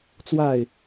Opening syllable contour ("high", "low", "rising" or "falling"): falling